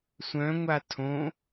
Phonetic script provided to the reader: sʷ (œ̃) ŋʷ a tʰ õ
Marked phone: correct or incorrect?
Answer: correct